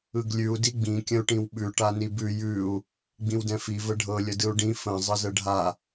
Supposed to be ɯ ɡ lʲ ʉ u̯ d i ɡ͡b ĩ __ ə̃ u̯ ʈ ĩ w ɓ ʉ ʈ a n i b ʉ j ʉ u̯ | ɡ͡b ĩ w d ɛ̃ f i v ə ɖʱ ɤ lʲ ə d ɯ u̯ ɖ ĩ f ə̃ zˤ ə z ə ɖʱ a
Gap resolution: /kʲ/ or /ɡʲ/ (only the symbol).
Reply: kʲ